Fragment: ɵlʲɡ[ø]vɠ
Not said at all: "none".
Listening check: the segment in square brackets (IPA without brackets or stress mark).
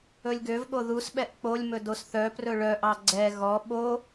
ø